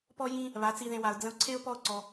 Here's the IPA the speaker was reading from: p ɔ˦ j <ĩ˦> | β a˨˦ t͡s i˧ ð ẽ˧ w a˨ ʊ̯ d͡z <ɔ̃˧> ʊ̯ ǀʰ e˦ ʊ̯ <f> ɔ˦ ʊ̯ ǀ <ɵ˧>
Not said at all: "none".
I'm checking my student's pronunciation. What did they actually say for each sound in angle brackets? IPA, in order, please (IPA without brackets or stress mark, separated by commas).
ĩ˦, ə̃˧, p, ɔ˧